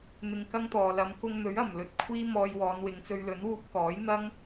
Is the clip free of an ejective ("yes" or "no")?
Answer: yes